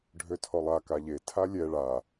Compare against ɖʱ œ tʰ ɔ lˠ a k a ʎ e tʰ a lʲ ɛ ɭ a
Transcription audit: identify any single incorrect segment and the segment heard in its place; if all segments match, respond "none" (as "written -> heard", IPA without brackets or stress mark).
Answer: œ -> ø